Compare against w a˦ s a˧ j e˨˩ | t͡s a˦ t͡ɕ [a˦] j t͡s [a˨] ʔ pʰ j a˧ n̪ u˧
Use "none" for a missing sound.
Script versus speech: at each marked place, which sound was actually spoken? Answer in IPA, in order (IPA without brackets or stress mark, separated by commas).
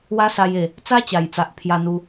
a˨˩, a˨